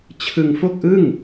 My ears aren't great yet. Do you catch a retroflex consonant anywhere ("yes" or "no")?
no